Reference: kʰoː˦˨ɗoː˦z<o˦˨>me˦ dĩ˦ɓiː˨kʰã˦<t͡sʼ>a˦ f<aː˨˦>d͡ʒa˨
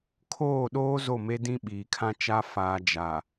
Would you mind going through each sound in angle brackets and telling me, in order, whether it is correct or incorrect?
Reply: correct, incorrect, incorrect

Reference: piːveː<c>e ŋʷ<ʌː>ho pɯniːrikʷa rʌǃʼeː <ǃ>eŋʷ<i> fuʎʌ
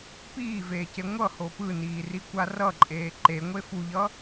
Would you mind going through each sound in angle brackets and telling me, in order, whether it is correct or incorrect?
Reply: correct, incorrect, correct, incorrect

